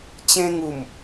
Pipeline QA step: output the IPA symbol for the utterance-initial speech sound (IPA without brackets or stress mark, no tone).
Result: t͡ɕ